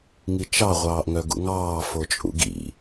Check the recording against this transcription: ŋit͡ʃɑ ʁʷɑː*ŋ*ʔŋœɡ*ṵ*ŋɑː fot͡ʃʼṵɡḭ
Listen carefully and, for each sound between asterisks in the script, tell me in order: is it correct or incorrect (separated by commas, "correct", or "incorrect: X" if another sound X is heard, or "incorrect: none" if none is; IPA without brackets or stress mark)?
incorrect: none, correct